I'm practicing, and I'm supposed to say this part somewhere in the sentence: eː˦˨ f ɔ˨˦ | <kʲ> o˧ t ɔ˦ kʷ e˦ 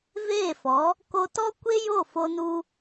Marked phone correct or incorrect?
incorrect